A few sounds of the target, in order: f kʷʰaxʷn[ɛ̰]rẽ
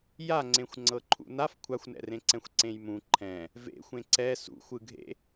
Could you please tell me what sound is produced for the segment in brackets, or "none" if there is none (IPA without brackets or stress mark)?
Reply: ɛ̰